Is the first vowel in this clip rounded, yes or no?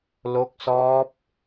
yes